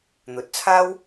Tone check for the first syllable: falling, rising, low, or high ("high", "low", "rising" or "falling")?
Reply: rising